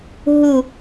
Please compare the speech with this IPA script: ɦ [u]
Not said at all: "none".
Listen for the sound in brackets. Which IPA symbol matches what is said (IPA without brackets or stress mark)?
u